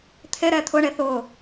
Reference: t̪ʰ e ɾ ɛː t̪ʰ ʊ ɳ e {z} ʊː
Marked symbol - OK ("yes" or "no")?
no